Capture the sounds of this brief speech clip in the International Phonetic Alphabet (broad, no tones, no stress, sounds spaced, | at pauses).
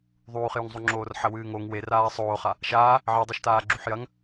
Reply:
ðˤ uː χ j u ŋ zˤ u ŋ͡ǁ oː r ħ ɐ w ɨː ŋ o ŋ w e r aː sˤ oː χ a | ʃ aː | ʕ i dˤ e ʃ t aː ɡ͡ǁ u ħ j ɐ ŋ